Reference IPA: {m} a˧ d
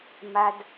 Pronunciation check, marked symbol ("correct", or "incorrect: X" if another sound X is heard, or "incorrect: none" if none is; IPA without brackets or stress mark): correct